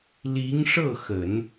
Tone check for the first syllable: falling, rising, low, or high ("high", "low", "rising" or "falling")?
rising